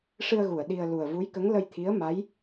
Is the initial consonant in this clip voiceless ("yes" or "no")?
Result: yes